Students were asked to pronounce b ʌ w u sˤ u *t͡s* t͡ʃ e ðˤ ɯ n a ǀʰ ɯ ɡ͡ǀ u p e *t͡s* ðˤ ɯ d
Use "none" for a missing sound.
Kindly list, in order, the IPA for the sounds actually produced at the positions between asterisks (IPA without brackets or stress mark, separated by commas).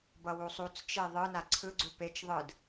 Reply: t͡s, t͡ʃ